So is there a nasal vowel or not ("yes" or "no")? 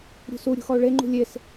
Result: no